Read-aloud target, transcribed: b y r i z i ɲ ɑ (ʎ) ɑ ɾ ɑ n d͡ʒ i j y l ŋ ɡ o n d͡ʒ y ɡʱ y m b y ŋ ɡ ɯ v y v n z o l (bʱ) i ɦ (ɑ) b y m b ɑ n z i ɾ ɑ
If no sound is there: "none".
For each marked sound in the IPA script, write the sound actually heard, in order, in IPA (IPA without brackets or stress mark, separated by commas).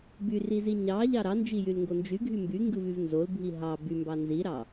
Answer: ʎ, bʱ, ɑ